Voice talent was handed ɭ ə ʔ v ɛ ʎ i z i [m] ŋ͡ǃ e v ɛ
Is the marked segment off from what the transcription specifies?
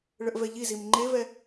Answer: no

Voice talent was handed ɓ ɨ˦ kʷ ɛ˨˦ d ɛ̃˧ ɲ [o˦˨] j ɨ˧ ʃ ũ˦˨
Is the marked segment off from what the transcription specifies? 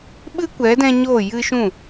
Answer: no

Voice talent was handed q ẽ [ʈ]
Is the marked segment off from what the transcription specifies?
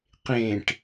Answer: no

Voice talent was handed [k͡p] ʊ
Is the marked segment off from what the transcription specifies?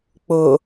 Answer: no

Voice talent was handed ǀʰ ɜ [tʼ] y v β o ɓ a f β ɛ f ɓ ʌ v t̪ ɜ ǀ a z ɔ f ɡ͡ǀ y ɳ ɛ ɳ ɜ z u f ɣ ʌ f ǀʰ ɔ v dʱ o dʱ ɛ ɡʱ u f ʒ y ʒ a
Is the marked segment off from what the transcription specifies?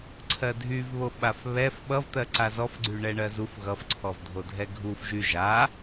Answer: yes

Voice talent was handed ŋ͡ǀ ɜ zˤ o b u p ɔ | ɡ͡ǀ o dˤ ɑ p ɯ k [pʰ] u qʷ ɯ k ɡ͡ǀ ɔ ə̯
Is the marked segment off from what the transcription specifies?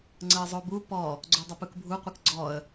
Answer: yes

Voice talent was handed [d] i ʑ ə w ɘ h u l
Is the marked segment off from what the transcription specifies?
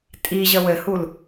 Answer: yes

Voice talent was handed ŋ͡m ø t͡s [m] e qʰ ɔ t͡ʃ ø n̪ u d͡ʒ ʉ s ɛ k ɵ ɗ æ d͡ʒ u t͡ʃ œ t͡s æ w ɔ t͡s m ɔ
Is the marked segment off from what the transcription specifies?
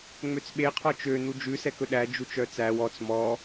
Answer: yes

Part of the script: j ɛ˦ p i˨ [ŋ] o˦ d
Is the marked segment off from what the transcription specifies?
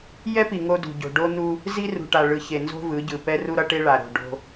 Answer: no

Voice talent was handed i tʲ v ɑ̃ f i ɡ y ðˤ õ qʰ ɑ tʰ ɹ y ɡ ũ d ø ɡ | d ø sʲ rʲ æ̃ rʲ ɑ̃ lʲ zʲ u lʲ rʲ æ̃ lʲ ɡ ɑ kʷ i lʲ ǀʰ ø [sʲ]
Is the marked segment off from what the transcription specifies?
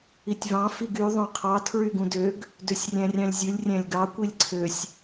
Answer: no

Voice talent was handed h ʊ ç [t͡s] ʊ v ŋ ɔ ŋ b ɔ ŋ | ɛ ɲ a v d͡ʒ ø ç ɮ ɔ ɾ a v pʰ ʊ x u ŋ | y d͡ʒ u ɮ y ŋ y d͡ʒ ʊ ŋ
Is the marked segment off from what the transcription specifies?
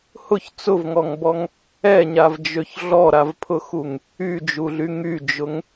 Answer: no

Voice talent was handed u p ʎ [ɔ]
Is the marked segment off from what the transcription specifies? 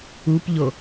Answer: yes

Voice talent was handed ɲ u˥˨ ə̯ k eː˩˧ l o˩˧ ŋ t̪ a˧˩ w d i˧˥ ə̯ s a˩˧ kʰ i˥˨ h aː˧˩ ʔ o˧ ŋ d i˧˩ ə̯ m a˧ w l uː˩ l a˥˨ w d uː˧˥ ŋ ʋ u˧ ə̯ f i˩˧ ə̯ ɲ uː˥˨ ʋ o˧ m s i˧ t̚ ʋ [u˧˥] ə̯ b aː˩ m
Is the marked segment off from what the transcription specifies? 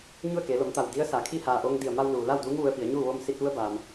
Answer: no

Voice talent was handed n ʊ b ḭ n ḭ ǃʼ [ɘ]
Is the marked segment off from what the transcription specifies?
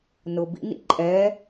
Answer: yes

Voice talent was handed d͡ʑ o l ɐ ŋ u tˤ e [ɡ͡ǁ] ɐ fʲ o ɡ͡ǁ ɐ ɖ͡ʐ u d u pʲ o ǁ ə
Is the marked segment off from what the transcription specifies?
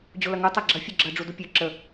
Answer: no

